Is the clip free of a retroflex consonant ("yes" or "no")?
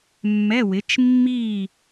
yes